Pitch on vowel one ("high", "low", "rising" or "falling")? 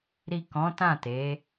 low